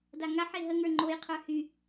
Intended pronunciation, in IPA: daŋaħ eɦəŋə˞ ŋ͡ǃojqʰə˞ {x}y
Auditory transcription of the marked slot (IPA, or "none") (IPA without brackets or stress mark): h